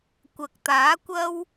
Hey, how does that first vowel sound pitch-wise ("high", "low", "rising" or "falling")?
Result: low